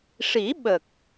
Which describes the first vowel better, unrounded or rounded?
unrounded